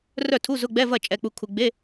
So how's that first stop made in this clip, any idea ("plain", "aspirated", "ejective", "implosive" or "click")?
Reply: aspirated